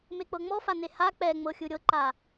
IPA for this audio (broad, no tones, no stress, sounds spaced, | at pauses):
m e k͡p ɤ ŋ͡m ɔ f a n e h a k͡p ɛ ŋ͡m ɤ xʲ ɯ ɾʲ ɤ ǃ a